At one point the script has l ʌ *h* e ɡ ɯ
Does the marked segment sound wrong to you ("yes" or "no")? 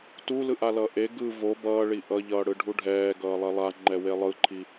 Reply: yes